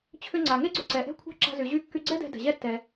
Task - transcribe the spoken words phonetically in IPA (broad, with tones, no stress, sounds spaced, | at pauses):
t͡ɕʰ ʏ˧ ŋ͡ǀ a˩ ŋ e˥ ɡ͡ǀ ʏ˧ ǀ ɛ˩ ʔ ɛ̤˥ kʷʰ a̤˥ ǁ a̤˧ z y˩ ʑ y˧ kː y˧ ɡ͡ǀ ɛ˥ d ɛ̤˧ d ɛ̤˩ ʑ ɛ˥ tː ɛ˩